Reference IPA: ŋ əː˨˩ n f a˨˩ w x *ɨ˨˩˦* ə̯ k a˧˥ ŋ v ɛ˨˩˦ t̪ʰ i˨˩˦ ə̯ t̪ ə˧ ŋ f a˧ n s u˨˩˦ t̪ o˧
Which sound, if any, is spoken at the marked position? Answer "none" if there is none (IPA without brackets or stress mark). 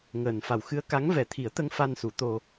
ɨ˧˥